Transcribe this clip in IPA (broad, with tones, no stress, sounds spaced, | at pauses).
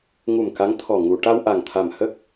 ŋ u˨˩ m k a˧˥ ŋ t̪ʰ ɔ˨˩ ŋ u˨˩˨ ʈ a˧ w ʔ a˨˩ ŋ t̪ʰ a˨˩ m h ə˦˥ k̚